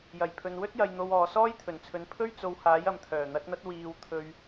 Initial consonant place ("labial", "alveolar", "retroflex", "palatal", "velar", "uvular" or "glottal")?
palatal